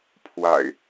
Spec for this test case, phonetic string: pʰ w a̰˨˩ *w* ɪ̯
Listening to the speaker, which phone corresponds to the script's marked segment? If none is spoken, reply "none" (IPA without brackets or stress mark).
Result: none